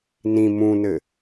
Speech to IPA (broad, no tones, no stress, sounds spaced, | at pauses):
n ĩ m ũ n ɘ